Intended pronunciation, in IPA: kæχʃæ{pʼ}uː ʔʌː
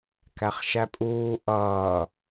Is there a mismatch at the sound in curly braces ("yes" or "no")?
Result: no